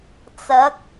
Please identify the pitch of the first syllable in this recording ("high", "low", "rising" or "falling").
rising